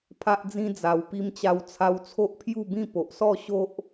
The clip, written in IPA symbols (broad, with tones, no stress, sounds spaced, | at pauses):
pʰ a˦ ʔ d͡z ĩ˦ d͡z a˨˩ w p i˧ m t͡ɕ a˧ w t͡sʰ a˧ w t͡sʰ o˦ ʔ pʰ j u˥˧ b ĩ˥˧ p o˨ ʔ s ɔ˥˧ ɕ o˦ ʔ